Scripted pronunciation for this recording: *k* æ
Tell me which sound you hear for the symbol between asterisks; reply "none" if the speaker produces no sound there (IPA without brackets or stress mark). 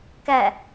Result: k